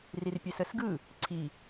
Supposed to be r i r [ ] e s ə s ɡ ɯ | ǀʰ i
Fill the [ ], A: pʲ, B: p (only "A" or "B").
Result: A